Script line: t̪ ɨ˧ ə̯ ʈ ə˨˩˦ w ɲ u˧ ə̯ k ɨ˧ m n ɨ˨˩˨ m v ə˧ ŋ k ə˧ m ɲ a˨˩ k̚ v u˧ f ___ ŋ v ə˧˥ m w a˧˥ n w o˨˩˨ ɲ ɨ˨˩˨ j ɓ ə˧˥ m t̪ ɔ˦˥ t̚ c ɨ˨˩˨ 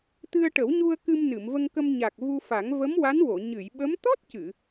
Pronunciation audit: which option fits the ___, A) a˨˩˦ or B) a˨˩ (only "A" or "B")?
A